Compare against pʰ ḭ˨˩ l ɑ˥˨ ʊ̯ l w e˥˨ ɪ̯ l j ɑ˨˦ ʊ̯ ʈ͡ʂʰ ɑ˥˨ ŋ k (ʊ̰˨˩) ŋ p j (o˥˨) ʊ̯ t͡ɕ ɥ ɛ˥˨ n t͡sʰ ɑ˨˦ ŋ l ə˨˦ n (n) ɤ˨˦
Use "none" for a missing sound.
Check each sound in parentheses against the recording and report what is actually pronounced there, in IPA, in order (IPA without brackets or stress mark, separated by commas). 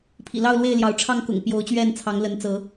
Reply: ʊ̰˨˩, o˨˦, t͡s